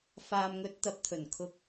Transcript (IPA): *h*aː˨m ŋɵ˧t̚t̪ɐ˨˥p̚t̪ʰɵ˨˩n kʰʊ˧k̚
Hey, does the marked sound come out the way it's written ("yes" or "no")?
no